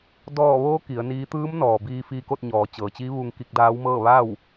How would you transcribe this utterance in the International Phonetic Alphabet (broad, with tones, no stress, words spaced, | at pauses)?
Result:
dɔː˧˩ ʋoː˧˥ ki˩˧ə̯niː˧˥ t̪ɯː˧˥mnɔː˩ biː˧fiː˧ko˥˨t̚ ɲɔː˩˧t͡ɕɤː˩t͡ɕiː˧˥ ʋu˧ŋki˧k̚daː˧˥wmɤː˥˨ ʋa˥˨w